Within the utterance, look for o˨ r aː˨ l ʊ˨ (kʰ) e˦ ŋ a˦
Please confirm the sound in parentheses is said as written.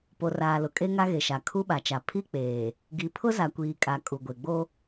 no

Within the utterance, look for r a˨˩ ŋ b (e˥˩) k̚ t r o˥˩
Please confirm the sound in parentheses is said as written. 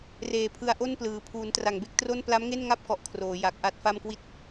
yes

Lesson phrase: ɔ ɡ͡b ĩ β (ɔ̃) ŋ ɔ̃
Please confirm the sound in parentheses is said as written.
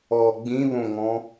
no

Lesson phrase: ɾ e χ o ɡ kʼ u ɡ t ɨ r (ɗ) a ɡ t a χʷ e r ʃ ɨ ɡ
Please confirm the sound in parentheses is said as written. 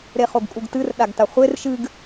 yes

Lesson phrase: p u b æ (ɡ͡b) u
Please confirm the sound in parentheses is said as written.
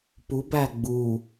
yes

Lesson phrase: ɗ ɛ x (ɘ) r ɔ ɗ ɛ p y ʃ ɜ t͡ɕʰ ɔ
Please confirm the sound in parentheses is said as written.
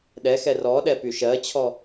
no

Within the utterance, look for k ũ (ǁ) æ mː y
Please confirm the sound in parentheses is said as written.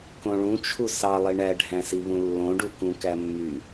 no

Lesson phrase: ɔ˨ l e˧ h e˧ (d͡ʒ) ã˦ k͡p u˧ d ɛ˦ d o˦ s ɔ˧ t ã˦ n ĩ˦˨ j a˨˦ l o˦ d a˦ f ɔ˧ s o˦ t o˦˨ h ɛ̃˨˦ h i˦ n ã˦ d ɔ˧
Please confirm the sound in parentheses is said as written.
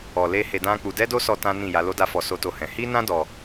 no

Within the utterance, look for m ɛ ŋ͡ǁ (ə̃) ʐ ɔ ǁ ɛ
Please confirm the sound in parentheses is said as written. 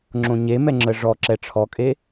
no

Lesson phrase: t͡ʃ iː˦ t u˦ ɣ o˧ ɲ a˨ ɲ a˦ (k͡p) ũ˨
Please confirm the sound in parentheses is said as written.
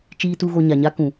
no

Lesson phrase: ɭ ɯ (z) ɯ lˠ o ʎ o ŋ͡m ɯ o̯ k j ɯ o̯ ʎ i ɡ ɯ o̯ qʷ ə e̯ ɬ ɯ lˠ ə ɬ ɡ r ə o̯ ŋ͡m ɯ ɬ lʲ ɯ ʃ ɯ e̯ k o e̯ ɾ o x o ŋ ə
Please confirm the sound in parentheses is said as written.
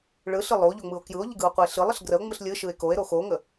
no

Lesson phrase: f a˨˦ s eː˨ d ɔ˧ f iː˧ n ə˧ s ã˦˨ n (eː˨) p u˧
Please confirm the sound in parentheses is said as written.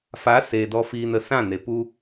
no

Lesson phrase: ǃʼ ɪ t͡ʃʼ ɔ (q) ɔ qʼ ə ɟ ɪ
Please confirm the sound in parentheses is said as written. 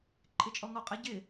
no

